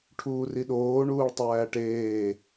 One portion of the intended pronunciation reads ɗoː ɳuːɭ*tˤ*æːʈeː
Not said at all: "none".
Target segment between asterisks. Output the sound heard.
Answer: tˤ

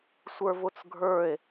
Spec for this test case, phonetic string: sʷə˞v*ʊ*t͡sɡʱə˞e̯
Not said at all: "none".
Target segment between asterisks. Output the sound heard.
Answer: ʊ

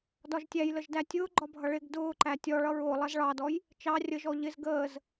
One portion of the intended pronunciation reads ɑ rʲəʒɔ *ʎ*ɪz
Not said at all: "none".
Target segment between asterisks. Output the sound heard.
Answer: ʎ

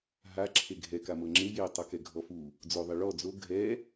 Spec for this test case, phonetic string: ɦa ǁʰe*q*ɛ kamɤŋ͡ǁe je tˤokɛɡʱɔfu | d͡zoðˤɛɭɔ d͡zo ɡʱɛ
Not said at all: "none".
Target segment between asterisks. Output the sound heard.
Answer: ɡʱ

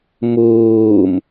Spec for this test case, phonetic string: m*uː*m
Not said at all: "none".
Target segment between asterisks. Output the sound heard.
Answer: uː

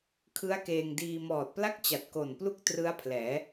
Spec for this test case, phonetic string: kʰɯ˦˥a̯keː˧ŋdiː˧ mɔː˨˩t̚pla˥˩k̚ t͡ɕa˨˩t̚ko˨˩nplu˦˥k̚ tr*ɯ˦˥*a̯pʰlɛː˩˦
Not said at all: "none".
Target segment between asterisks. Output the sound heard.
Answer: ɯ˦˥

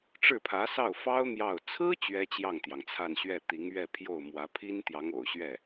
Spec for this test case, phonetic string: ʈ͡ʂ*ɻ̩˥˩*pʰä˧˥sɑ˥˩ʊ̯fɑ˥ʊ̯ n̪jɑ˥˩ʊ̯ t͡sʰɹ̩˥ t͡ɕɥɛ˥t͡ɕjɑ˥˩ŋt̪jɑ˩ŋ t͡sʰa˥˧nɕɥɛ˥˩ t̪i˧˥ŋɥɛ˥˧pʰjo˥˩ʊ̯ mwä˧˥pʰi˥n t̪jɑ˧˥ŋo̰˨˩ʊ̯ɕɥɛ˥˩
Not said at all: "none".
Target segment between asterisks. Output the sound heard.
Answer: ɻ̩˥˩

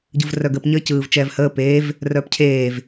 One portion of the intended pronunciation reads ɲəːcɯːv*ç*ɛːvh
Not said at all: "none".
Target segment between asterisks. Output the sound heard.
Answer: t͡ʃ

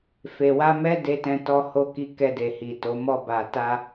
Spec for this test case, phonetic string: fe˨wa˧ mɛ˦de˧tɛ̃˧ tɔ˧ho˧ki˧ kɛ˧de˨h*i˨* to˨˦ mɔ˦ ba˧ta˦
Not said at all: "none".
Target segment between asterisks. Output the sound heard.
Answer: i˨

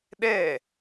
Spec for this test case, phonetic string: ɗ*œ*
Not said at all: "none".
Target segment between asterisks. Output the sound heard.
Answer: ɛ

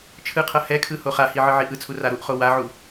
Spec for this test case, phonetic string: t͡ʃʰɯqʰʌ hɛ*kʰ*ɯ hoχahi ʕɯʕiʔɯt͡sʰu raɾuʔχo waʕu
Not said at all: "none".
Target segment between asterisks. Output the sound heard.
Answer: kʰ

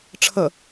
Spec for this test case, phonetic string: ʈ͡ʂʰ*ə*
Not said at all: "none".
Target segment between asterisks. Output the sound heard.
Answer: ə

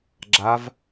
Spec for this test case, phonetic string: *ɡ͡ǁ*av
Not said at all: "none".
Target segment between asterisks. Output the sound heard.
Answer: ɡ͡ǁ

